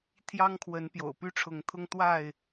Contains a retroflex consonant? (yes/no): yes